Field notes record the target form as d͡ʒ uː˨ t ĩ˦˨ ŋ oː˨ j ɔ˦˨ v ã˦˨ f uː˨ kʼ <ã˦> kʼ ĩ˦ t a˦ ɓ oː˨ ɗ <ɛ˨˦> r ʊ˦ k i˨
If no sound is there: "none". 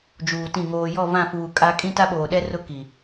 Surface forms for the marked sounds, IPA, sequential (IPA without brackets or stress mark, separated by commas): a˦, ɛ˦